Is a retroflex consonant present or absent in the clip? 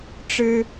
present